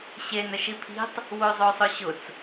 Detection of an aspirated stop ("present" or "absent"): present